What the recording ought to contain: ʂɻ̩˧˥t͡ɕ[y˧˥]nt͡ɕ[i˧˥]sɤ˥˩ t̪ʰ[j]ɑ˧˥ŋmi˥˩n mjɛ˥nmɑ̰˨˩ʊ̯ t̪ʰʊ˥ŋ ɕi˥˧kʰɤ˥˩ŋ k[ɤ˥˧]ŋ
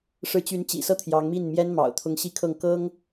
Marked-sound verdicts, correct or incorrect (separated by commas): correct, incorrect, correct, incorrect